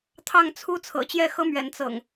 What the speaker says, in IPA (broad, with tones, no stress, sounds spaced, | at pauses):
t̪ʰ ɑ˥˨ ŋ t͡sʰ u˦ t͡sʰ ɤ̰˨˩ t͡ɕ j ɛ˥˨ x ɤ˦ m ɥ ɛ˨˦ n t͡s ɤ̰˨˩ ŋ